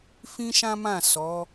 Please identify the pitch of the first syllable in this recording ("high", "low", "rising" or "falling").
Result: high